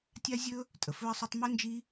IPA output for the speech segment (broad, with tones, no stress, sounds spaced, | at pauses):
tʲ a˥ zʲ ɵ˥ | tʼ ə˩ f ɵ˥ ə̯ sˤ ɵ˥ tˤ m ɵ˥ n d͡ʒ i˥